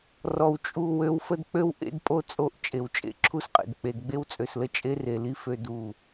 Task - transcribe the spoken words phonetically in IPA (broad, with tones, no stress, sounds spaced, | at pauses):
r ɔ˨ w t͡ʃʼ u˦˨ w ø˦ w f ə˦ d k͡p ø˦ w ʔ ḛ˦ d pʼ o˦ t͡sʼ o˦˨ ʔ t͡ʃʼ e˨ w t͡ʃʼ ḛ˦ ǁʰ u˦ s qʼ ḛ˨ d k͡p e˨ d ɡ͡b e˦ w t͡sʼ ø˨ s l ə˦ t͡ʃʼ e˦ r e˨ l i˦ f ø˦ d u˦˨